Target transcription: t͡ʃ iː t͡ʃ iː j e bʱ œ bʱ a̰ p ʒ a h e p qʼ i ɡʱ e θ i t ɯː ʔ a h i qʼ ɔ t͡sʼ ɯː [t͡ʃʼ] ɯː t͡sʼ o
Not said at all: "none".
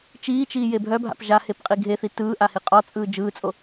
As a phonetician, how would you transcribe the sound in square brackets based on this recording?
d͡ʒ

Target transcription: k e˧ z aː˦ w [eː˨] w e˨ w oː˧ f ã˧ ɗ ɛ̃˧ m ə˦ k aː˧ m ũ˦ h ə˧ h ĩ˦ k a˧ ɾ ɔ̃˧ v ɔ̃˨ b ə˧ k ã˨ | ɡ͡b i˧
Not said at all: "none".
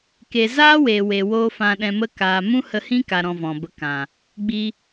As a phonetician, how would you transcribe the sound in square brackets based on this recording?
eː˨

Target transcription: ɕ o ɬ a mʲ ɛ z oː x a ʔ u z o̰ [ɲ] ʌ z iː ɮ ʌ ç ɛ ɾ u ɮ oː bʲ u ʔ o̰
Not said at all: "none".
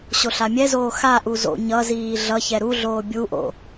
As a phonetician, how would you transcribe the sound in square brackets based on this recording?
ɲ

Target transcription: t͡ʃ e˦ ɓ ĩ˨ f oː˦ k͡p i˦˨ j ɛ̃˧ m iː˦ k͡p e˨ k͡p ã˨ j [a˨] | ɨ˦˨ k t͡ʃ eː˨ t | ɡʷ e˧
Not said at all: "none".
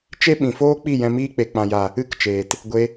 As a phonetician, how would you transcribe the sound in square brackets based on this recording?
a˨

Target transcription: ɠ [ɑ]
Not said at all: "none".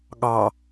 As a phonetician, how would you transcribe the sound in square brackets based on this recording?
ɑ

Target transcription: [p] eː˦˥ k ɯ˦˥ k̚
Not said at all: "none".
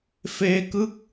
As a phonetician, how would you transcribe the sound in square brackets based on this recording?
f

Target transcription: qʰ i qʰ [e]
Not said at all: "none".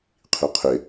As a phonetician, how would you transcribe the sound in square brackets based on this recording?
e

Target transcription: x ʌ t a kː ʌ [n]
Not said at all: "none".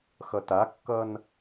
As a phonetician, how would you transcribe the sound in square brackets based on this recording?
n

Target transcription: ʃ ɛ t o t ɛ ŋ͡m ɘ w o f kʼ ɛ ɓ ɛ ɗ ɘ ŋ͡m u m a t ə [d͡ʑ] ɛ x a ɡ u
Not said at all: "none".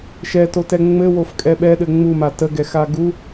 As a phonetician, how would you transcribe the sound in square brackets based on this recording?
ɡ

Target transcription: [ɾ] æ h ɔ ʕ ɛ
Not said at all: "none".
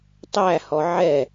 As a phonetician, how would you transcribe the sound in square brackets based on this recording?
tˤ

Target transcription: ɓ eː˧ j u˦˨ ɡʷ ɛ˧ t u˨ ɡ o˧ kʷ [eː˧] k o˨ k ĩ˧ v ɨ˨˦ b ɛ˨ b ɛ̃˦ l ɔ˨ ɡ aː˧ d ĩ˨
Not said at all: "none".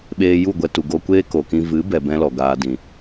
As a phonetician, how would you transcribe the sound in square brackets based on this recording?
eː˦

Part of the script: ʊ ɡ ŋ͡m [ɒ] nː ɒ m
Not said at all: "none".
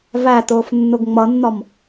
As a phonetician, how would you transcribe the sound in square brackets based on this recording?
ʌ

